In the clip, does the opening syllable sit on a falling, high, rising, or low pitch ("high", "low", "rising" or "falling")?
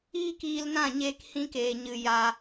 high